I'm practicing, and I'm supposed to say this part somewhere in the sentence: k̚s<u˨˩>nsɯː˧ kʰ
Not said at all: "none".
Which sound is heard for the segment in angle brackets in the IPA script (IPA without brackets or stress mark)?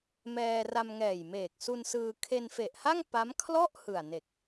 u˧